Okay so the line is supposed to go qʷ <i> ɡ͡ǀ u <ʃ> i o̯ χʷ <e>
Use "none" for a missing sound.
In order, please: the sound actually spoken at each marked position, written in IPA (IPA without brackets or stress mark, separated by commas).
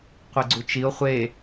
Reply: i, t͡ʃ, e